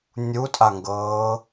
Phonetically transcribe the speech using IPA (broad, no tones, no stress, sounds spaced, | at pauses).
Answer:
nʲ u tʼ a ŋ ɡ ɤː